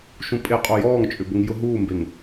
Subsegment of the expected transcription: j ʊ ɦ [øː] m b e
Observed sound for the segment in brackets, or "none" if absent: uː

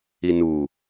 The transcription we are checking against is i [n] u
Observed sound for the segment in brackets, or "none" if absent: n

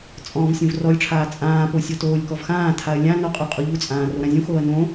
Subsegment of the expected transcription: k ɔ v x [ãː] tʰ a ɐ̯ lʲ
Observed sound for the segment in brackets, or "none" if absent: ãː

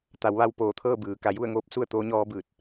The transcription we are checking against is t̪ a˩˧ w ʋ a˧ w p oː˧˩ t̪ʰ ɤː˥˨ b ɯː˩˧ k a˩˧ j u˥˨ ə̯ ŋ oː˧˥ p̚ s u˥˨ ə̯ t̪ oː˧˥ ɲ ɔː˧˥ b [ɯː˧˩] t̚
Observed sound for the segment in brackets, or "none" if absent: ɯː˧˩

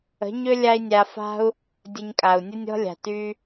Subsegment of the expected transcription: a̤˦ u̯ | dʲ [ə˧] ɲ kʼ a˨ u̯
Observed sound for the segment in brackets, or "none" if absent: ə˧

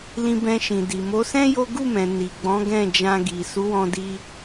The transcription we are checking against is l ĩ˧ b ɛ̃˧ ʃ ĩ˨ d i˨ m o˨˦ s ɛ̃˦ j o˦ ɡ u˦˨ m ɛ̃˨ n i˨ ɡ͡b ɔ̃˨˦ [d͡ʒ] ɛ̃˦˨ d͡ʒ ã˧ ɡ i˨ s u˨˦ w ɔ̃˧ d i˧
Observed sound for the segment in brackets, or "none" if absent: ɡ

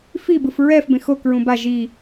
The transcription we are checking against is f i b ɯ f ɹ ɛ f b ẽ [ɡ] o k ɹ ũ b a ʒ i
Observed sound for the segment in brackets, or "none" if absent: x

